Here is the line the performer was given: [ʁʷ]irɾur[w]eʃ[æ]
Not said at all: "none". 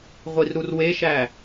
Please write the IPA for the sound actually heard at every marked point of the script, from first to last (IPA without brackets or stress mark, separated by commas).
ʁʷ, w, æ